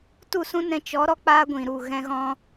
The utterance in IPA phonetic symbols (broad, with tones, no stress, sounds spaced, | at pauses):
t u˦˨ s ũ˦ n ɛ̃˧ t͡ʃ ɔ˨˦ ɾ ɔ˧ k͡p aː˦ ɡʷ ĩ˨ ɾ u˦˨ ɣ ɛ̃˦ ɣ ɔ̃˦